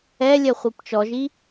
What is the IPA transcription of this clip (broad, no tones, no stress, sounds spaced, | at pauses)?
ɛ lʲ ɛ χʷ i p t͡ʃ ɔ ʒ i